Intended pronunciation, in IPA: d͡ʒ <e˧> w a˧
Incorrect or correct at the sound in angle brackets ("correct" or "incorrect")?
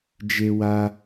correct